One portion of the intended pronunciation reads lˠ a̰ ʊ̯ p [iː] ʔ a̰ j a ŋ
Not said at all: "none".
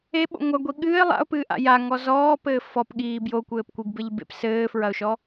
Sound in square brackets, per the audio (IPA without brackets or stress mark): ɨː